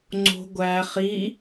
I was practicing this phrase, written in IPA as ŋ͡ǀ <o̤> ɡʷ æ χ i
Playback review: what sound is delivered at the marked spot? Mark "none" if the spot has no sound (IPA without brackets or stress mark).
o̤